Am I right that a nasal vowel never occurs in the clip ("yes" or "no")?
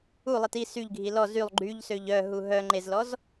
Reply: yes